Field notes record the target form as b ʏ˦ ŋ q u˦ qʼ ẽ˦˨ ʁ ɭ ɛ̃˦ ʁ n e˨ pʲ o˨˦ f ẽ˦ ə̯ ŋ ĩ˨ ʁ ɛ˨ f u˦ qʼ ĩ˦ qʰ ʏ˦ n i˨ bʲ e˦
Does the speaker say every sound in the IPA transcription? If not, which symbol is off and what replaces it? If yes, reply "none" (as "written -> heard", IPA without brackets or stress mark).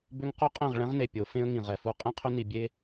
none